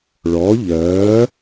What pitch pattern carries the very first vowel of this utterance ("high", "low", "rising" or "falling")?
rising